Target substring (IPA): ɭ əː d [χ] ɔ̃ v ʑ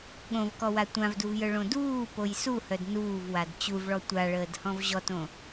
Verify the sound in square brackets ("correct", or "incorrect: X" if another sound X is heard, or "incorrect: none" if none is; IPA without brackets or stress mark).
incorrect: h